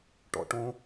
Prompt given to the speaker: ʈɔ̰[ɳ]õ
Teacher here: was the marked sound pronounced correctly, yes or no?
no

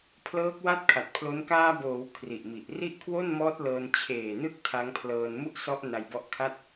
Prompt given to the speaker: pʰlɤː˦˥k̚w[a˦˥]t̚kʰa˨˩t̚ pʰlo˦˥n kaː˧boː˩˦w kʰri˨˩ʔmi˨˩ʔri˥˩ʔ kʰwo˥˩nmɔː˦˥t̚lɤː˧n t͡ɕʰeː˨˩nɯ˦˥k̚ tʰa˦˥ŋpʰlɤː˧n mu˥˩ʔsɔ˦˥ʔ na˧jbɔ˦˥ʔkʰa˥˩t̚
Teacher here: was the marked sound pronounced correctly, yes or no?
no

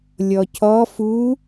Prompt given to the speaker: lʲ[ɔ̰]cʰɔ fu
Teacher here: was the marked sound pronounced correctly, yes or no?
no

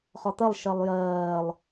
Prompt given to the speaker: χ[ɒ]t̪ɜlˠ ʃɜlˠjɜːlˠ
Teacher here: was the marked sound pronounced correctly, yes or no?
yes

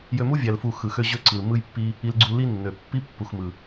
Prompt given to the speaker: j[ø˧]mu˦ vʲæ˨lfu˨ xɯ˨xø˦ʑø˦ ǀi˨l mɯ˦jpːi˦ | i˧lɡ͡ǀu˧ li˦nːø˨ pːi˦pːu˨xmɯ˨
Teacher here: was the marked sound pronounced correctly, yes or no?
yes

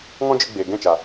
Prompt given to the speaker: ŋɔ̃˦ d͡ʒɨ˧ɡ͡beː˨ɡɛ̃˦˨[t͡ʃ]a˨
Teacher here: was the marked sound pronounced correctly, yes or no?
yes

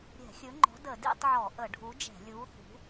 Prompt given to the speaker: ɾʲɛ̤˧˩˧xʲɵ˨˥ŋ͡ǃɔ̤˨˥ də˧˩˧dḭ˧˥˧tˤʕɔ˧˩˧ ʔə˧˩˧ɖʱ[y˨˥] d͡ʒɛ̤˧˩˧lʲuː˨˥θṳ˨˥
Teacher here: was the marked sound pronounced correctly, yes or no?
no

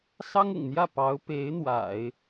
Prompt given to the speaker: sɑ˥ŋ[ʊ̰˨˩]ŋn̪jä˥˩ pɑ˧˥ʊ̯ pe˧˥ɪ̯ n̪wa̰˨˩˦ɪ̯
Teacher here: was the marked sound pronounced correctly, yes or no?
yes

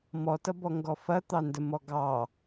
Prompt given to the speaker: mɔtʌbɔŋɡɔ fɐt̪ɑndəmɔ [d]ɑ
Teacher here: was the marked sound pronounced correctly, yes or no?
no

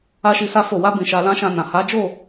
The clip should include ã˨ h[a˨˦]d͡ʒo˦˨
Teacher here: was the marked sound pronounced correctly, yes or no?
yes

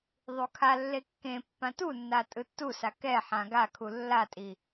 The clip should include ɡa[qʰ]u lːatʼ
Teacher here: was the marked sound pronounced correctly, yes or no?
no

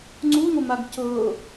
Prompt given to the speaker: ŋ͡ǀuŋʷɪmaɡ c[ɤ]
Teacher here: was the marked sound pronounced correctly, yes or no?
yes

